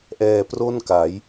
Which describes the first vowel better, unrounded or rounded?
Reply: unrounded